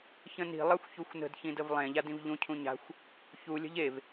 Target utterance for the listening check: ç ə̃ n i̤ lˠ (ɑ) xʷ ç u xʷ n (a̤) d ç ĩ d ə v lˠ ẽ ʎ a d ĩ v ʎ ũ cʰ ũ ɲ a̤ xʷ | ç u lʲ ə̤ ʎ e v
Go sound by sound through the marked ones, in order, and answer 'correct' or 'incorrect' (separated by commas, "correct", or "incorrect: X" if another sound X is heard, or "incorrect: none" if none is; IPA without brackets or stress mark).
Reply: correct, incorrect: ə̤